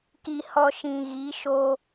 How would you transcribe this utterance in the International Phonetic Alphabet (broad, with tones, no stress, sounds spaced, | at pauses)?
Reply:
k i˨ h ɔ˨ ʃ ĩ˨ ɣ i˨˦ ʃ o˧